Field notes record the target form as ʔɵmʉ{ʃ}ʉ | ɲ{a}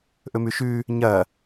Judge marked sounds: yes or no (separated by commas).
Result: yes, no